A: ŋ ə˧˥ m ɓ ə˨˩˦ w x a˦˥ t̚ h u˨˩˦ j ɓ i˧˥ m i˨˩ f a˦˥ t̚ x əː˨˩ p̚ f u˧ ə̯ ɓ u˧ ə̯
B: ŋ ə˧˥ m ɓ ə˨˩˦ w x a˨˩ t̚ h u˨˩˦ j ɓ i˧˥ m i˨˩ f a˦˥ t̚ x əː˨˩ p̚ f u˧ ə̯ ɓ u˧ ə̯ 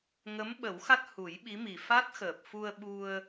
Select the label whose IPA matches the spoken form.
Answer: A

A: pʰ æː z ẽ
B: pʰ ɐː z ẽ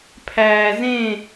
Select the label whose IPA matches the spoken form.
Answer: A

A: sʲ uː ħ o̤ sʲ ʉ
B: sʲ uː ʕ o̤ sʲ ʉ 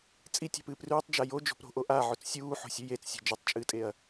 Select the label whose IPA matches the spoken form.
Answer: A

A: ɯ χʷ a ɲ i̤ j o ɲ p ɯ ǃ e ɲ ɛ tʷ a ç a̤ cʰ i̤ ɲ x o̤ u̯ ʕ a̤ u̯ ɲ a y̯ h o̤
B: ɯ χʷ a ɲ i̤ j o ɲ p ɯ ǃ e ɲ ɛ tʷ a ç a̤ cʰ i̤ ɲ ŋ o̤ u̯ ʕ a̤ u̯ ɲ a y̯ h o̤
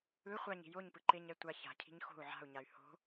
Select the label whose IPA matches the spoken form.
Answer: A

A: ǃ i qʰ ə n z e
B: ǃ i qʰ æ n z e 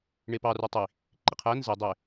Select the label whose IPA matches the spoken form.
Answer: B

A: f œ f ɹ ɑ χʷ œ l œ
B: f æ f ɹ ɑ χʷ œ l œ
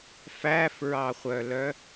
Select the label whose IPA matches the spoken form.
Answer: B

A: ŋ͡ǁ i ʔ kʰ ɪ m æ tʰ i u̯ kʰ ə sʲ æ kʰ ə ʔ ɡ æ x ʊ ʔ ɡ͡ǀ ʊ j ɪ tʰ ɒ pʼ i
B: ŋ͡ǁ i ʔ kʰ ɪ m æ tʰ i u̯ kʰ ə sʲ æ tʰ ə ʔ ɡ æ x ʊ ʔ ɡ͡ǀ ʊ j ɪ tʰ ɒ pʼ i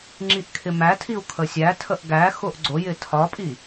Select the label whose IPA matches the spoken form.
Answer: B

